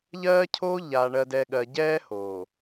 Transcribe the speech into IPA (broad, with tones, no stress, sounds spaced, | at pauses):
ʎ ɜː˦ cʰ oː˦ ʎ a˨ ɳ ɜ˨ d ɛ˨ ɠ ɜ˨ ɟ ɛː˦ h oː˨